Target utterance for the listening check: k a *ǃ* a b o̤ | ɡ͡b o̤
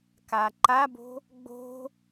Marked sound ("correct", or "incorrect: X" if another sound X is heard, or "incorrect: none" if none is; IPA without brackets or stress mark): correct